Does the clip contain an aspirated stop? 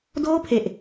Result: yes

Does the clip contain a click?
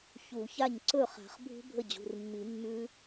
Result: yes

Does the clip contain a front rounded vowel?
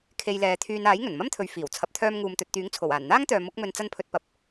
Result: yes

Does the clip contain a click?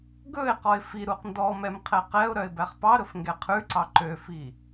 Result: yes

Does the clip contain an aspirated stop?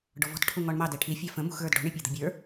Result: yes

